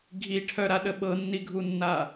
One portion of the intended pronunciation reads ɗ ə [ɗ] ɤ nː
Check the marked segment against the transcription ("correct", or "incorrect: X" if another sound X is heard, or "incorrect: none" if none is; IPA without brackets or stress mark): incorrect: ɓ